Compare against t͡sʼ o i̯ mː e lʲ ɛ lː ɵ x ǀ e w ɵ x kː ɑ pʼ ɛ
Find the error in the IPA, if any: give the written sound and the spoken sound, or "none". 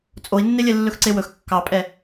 mː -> nː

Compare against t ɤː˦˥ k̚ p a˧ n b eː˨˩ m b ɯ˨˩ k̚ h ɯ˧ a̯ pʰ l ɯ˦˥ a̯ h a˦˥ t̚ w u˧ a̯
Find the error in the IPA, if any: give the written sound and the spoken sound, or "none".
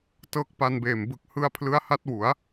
u˧ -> u˩˦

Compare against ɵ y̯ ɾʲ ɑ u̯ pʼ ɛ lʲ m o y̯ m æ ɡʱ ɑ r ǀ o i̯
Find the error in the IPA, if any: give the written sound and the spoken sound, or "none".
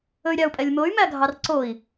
none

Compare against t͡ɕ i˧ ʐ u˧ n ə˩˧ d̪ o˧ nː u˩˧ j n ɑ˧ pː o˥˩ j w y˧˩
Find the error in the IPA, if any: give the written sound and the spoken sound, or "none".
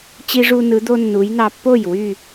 ə˩˧ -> ɯ˩˧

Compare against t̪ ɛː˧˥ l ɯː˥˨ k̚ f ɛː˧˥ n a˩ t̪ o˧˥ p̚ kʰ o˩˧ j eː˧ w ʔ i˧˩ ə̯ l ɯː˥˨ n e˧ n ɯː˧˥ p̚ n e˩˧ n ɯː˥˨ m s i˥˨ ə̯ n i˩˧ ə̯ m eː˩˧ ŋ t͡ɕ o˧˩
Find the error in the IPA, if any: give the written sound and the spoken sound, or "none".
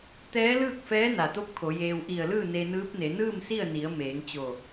none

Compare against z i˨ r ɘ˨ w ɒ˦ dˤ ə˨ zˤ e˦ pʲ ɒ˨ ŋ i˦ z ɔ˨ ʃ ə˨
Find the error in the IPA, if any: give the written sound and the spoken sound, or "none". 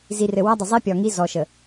none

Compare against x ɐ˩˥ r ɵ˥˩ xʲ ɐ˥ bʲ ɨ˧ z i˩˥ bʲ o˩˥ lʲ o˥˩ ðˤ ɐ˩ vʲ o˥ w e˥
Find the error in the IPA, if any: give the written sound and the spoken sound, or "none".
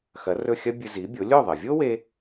none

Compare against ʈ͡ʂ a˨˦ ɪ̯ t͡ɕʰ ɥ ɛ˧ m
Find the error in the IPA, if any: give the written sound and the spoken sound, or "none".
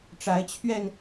m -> n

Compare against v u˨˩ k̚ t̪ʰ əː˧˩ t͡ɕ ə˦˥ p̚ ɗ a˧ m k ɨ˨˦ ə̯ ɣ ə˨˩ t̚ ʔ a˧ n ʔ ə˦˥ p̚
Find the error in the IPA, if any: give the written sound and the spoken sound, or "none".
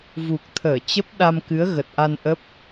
none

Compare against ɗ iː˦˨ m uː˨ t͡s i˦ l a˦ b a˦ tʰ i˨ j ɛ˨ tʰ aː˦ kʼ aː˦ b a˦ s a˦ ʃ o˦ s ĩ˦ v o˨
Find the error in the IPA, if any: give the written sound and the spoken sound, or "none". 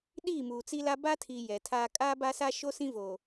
none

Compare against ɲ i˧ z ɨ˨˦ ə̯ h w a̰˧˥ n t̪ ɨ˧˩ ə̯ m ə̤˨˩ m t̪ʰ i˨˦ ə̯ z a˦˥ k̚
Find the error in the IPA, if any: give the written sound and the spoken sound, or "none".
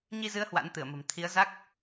none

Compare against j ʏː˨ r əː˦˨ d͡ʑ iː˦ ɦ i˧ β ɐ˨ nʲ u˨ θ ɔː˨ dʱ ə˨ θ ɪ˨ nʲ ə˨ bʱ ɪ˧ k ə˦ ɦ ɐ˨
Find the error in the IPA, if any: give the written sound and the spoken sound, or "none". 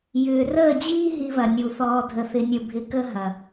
none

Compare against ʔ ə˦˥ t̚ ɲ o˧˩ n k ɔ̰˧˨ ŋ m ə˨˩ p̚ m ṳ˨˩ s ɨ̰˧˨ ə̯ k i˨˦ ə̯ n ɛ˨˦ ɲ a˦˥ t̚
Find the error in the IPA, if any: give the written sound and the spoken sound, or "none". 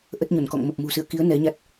none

